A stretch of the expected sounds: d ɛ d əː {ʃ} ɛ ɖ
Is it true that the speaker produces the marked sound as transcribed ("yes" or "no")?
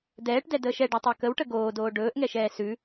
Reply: yes